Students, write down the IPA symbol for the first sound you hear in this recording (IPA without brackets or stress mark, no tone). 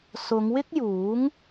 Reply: s